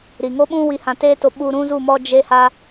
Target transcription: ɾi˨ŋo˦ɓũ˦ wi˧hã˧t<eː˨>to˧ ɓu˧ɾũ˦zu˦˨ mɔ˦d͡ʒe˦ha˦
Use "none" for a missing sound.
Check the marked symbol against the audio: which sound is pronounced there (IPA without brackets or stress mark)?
eː˦